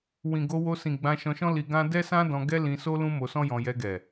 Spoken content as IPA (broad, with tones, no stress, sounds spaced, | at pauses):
w ĩ˨ ɡ o˧ w o˧ s ĩ˨ ɡ͡b ã˧ ʃ ɔ̃˧ ʃ ɔ̃˦ l i˧ ɡ ã˦ d ɛ˦ s ã˦ d ɔ̃˧ ɡ ɛ˦ l ĩ˧ s o˦ l ũ˦ m o˧ s ɔ̃˦ j ɔ̃˧ j ɛ˧ ɡ ɛ˨